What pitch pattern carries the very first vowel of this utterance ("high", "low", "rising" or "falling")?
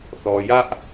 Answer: low